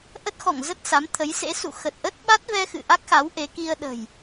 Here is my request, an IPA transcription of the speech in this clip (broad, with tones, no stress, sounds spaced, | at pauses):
ʔ ə˦˥ t̚ x ɔ̰˧˨ ŋ z ə˦˥ t̚ s a˨˦ m t̪ʰ ə˨˦ j s ḛ˧˥ s ṵ˧˨ x ə˨˩ t̚ ʔ ə˦˥ t̚ ɓ a˦˥ t̚ v ɛ˧ x ɨ̰˧˨ ʔ a˦˥ k̚ x a˨˦ w ʔ e˨˦ k i˧ ə̯ ɗ ə̤˨˩ j